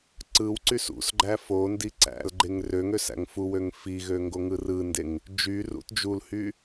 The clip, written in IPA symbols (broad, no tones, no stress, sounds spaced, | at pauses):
ǀ ɯ w ǀ y s ṵ s ɡ͡ǃ æ f o n d i ǀ æ̰ l ɡ͡ǃ e ŋ r ø ŋ ø s æ̰ ŋ f u w ø ŋ f i ɣ ø ŋ ɡ o ŋ ɯ r ɯ n d e ŋ | d͡ʒ y r ṵ t d͡ʒ u l h y